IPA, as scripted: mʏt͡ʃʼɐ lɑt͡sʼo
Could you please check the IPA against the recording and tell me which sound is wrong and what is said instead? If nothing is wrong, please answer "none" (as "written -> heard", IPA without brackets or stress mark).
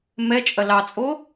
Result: ʏ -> ɛ